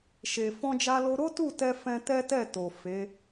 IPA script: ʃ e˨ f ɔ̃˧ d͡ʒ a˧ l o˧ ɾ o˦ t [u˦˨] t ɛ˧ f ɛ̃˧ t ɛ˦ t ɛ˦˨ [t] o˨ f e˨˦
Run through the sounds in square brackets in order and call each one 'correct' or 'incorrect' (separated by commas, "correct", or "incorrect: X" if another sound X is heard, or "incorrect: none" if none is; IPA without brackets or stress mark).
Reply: correct, correct